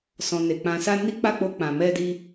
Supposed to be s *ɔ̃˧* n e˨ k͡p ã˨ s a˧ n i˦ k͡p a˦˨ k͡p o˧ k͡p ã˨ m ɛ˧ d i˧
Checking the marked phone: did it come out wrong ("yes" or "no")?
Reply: yes